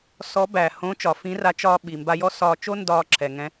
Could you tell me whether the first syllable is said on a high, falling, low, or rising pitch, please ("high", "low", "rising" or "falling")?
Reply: rising